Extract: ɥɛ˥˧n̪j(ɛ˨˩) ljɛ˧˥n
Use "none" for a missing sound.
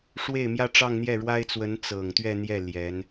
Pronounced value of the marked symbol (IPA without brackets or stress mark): ɛ˥˩